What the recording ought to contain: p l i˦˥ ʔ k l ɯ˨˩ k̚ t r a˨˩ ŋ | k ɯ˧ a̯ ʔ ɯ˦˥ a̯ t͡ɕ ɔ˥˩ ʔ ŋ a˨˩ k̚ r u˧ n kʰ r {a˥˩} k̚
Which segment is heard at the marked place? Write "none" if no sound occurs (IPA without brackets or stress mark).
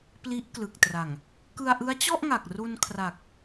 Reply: a˨˩